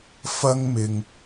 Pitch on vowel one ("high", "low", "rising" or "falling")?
high